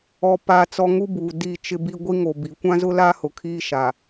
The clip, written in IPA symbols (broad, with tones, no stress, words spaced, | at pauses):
ɔ˦paː˦t͡sɔ˦ ŋu˦buː˨ di˦˨t͡ʃɪ˦bi˦ ɡʷi˦ŋo˨ bi˨˦ kʷã˦zʊ˦la˦ hʊ˨kʰiː˦ ʃa˨